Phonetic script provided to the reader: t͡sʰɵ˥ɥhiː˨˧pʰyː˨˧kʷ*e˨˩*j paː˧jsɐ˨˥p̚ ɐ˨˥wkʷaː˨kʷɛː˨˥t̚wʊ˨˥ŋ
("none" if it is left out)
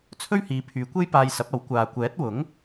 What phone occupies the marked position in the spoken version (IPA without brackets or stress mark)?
e˥